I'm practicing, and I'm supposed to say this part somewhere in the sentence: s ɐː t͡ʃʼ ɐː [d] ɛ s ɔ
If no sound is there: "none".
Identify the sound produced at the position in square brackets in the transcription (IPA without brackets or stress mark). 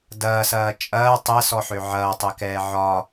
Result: tˤ